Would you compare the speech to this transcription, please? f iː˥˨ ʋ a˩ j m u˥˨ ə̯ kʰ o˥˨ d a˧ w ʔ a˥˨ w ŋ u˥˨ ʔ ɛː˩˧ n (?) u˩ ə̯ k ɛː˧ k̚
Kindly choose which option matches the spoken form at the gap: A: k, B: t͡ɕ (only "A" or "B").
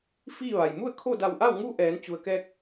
B